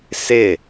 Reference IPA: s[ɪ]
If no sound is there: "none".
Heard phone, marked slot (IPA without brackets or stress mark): ɪ